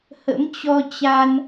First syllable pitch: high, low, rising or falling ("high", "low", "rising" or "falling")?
rising